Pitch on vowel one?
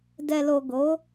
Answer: low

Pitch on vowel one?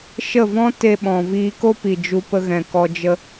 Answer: falling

